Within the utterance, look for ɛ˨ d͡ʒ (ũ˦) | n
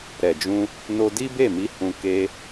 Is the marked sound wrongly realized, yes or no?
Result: yes